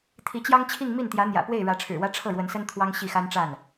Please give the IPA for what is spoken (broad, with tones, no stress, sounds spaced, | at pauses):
t̪ʰ i˧˥ t͡ɕ j ɑ˥ ŋ t͡ɕʰ i˥˧ ŋ m i˥˩ n t̪ j ä˧˥ n̪ j ä̰˨˩ p w e˥˩ ɪ̯ ɻ ä˧˥ ʈ͡ʂʰ ɻ̩˨˩ w ä˥ ʈ͡ʂʰ ɤ˥˩ ɻ w ə˧˥ n s ə˥ n t̪ʰ w ɑ˥ ŋ ɕ i˥˩ x a˥ n ʈ͡ʂ a˥˩ n